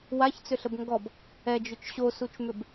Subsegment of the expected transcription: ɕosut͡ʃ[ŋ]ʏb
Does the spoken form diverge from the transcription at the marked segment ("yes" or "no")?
yes